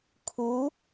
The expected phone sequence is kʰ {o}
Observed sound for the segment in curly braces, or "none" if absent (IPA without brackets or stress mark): u